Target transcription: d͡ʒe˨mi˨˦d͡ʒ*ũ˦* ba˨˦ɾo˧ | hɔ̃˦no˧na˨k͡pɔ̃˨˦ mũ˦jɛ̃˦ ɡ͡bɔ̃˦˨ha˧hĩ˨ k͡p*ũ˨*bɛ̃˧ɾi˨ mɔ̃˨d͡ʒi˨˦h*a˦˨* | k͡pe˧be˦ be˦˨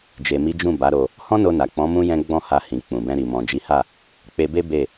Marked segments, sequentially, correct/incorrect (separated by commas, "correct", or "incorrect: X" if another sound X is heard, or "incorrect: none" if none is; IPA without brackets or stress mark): incorrect: ũ˦˨, correct, correct